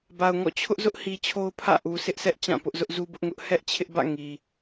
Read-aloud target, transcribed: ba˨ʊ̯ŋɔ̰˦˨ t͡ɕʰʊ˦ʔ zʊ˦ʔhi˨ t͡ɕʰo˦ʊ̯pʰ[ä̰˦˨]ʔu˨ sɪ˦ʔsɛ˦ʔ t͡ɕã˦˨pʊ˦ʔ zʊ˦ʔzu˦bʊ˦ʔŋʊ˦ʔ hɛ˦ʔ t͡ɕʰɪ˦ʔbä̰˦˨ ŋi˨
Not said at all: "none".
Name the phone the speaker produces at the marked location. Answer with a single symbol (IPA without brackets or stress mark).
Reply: ä̰˦˨